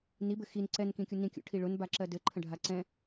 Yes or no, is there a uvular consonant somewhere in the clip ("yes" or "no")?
no